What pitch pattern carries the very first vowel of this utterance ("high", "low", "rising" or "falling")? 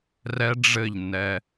high